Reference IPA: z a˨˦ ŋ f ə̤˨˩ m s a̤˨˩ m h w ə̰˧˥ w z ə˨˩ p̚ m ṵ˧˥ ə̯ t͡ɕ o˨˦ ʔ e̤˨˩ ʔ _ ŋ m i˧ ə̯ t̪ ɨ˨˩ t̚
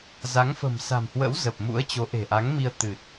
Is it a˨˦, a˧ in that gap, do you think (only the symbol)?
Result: a˨˦